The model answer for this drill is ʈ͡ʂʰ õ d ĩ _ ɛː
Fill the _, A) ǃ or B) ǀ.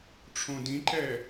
A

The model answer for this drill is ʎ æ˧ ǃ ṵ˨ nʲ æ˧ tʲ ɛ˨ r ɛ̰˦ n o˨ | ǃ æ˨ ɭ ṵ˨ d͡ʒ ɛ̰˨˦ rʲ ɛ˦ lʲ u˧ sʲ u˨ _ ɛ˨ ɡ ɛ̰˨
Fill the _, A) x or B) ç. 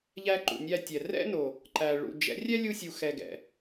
A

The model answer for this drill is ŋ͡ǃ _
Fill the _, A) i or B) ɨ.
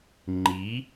A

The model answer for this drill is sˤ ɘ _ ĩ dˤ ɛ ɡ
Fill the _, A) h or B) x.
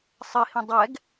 A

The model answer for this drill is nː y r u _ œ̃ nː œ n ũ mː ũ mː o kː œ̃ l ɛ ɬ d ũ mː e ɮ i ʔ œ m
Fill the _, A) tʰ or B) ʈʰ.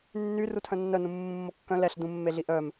A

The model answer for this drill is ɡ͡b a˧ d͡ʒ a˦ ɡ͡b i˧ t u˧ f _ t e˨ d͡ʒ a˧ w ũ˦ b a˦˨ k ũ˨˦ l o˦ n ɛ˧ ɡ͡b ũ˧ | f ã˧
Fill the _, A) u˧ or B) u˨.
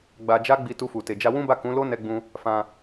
B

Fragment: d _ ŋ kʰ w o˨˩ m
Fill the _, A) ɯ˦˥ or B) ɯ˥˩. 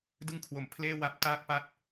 B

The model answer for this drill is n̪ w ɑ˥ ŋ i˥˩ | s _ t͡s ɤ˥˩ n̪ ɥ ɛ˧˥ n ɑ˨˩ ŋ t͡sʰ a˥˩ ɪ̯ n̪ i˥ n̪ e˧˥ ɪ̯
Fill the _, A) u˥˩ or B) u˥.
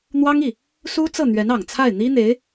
B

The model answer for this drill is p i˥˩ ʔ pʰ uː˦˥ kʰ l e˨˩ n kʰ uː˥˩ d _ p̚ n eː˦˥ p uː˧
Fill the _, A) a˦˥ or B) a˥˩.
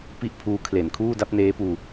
A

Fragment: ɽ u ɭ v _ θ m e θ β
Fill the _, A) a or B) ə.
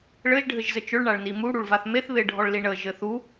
A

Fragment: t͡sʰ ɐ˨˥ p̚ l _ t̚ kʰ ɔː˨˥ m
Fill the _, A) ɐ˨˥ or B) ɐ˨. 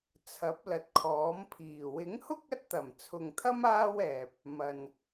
B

